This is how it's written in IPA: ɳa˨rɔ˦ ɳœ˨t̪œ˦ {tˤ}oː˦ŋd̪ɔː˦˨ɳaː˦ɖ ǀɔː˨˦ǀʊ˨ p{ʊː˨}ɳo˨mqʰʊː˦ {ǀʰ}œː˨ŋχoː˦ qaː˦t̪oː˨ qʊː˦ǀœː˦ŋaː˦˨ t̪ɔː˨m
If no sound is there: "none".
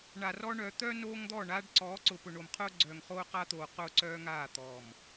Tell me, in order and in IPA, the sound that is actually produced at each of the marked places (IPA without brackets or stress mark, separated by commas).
n, ʊ˨, ɡ͡ǀ